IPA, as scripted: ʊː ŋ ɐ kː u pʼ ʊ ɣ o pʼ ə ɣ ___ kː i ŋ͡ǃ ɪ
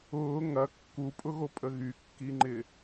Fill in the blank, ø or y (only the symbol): y